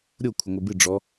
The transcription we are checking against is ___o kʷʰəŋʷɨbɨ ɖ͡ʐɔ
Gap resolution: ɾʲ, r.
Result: ɾʲ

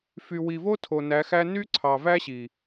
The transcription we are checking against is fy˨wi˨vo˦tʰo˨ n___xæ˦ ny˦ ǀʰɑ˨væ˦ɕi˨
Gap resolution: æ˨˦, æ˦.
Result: æ˨˦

